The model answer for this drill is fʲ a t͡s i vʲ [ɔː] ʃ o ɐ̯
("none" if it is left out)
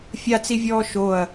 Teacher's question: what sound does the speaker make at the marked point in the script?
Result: ɔː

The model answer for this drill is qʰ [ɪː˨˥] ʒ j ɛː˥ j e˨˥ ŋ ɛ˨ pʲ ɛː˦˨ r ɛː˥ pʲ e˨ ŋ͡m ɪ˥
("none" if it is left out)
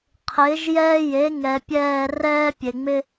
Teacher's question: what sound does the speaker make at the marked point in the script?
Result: ɪː˨˥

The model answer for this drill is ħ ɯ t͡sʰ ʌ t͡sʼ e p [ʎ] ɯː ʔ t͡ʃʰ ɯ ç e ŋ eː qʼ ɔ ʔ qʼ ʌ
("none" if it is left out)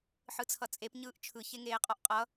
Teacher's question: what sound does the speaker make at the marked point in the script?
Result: ɲ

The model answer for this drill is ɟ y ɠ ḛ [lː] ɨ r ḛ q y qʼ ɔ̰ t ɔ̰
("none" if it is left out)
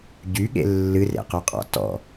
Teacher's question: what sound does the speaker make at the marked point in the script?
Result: lː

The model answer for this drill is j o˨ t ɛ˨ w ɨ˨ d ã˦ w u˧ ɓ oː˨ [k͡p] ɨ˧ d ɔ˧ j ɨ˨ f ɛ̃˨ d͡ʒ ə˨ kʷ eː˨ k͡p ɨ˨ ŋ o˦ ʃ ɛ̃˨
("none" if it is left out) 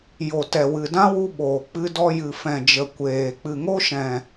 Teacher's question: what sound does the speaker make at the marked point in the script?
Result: k͡p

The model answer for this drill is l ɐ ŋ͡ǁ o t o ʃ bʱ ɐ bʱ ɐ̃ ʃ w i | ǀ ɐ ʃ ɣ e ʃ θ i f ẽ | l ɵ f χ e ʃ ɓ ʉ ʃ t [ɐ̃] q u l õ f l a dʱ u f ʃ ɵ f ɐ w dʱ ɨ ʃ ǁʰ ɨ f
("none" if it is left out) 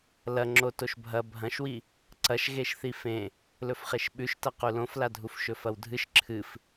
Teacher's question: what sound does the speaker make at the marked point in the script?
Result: ɐ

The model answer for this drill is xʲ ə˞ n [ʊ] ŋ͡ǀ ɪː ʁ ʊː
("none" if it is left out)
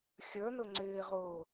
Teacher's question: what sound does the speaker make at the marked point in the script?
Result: ʊ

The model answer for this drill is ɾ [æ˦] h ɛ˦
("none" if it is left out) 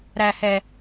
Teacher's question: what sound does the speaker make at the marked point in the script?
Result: æ˦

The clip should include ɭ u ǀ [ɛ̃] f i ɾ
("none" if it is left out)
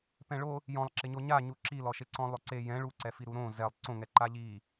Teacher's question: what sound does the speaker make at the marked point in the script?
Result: ɛ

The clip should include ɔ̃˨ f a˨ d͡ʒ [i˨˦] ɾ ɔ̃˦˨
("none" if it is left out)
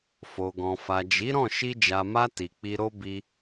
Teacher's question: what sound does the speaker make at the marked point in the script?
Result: i˨˦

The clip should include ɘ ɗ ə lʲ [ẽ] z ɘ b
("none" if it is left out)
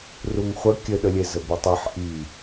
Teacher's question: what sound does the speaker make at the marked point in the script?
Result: e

